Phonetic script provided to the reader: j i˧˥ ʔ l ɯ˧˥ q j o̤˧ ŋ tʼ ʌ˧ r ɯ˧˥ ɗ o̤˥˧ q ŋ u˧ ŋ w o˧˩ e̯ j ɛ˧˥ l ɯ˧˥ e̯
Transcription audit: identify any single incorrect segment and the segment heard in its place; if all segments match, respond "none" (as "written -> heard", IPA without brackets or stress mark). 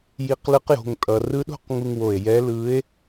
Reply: ʔ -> q